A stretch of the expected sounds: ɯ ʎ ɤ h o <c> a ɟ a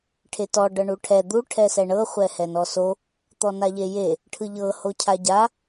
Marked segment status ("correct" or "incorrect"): incorrect